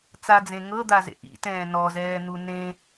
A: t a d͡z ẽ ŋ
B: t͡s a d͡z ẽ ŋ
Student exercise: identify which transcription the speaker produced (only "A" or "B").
B